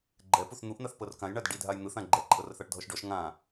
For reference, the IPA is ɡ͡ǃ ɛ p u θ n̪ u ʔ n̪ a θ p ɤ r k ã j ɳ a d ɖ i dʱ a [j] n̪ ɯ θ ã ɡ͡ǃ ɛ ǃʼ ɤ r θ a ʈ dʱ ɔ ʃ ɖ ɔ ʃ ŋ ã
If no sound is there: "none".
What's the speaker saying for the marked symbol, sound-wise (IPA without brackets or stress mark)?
j